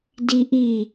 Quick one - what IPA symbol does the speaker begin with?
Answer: d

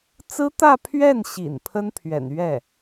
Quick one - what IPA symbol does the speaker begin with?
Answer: t͡s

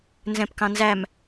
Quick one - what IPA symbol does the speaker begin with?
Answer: n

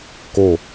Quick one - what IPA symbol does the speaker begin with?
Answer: k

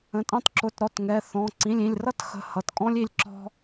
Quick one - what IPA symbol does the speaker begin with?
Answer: ə̃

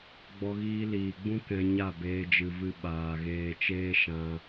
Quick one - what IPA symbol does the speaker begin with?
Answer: ɡ͡b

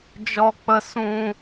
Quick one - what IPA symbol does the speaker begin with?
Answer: d͡ʒ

